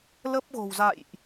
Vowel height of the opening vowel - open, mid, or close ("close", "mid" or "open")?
mid